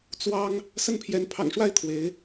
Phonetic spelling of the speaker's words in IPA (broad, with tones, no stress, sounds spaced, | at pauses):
t͡s w ɑ˥ ŋ | s ə˥˩ n pʰ j ɛ˧˥ n pʰ ɑ̰˨˩ ŋ ʂ w a˥˩ ɪ̯ t̪ʰ w e˧˥ ɪ̯